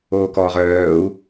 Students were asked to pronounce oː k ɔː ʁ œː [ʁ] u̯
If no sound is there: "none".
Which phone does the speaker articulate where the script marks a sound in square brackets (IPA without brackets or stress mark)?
none